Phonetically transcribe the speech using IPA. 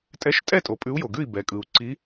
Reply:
tʼɛ˧˥ʃtʼɛ˥˨tʼo˨ pʼʉ˧˥u̯jo˨ɡʉ˥˨i̯ bɛ˨kʼɯ˨u̯ǀi˧˥

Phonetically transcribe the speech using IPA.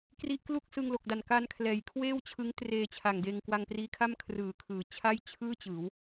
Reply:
kri˦˥ʔklu˥˩k̚ sɯ˧ŋlo˨˩k̚da˨˩n ka˧n kʰlɛː˩˦jkʰweː˥˩wt͡ɕʰɯ˦˥ŋ treː˧t͡ɕʰa˨˩ŋ deː˧ŋkwa˧ŋpriː˦˥kʰa˥˩m kʰrɯː˨˩kʰɯː˩˦ t͡ɕʰa˥˩jt͡ɕʰɯː˥˩ t͡ɕɯː˩˦w

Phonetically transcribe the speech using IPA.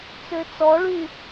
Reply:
t͡søt͡sɔɭy

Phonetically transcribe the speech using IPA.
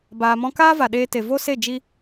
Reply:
baː˨mɔ̃˧ kaː˦va˨ ɗeː˧te˨vo˦se˦˨ d͡ʒi˦

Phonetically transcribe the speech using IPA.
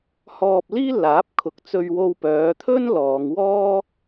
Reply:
hɔː˧p̚liː˥ laː˨˥p̚kʰʊ˨˥k̚t͡sɵ˧ɥwo˧w pœː˨˧t̪ʰɵ˥n lɔː˨˧ŋ wɔː˥

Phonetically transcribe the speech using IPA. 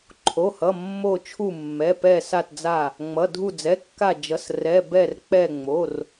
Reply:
ǃʰo˩˧˩hʌ˩˧˩ mːo˧˩t͡ʃʰu˧˩mːɛ˩˧˩pɛ˧˩ sa˧˩td͡za˧˩ | ŋ͡mʌ˩˧˩dʱu˧˩d͡zɛ˩˧˩kːa˧˩ d͡ʒʌ˩˧˩srɛ˩˧˩ bɛ˧˩rk͡pɛ˧˩ ŋ͡mo˩˧˩r

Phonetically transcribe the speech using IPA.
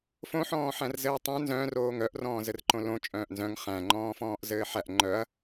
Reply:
fõħɔ̃ː ħæ̃rzɘːtˤœ̃ nzœ̃ːroːŋ œʔrɔ̃ː zɘrǃõlõ t͡ʃʼœ̃ːʔnzœ̃ŋ χæ̃ŋ͡ǃɔ̃ːfɔ̃ːʔzɘː ħæʔ ŋ͡ǃœɐ̯

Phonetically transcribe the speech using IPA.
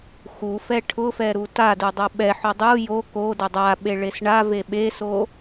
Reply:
xu fɛʈʰʊfɛ ɾutadu dˤoɓɛħo dˤu jo ko dʊdˤaɓe ɭesɳave ɓeso

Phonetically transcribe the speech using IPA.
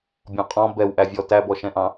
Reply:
bʲɔ̃qʼɔ̃ bɛwʔævʲɔ tæbɔʃɛ̃ʔɑ̃

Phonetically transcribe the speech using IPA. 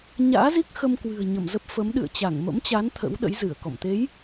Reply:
ɲa̰ː˧˥zi˦˥k̚ xə˧mkwɨ̤˨˩ə̯ ɲə˧˩mzə˦˥p̚fə˨˦m ɗɨ̰˧˨ə̯t͡ɕa˧˩ŋmə̰˧˥mt͡ɕa˨˦n t̪ʰə̰˧˥wɗə̰˧˥jzɨ˧˩ə̯kɔ̰˧˨m t̪e˨˦j

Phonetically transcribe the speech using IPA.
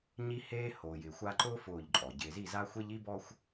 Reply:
ɲi˦heː˦ hoː˨jɪː˨xʷa˦ ǃʊː˦ fʊː˦˨ʎǃʼɔ˨ ɟɪː˨zi˦˨za˦xʷe˦ʎ i˦bɔ˦xʷ

